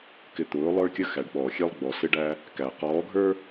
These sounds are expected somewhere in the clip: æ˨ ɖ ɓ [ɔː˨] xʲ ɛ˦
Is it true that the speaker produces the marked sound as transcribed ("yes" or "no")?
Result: yes